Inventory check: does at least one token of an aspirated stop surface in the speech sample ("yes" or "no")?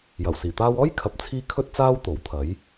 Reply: yes